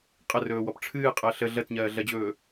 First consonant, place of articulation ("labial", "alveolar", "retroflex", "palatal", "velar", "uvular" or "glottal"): uvular